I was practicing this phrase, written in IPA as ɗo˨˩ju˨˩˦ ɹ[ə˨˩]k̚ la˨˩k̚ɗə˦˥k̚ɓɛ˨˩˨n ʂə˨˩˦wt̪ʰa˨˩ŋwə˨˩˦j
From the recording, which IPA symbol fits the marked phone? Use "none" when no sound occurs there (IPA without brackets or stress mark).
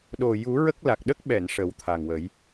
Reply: ə˦˥